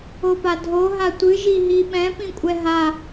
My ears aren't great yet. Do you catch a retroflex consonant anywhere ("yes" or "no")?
no